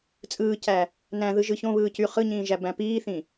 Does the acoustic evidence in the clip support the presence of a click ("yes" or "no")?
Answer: no